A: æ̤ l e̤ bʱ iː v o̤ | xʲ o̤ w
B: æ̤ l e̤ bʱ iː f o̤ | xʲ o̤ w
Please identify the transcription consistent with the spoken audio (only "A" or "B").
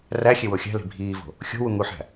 A